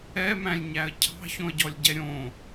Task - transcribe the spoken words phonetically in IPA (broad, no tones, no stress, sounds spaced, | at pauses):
ɛ m æ̃ lʲ ɲ æ ə̯ cʰ ɑ̤ ç õ ə̯ ɟ ɔ lʲ ɟ ɛ ɾʲ õ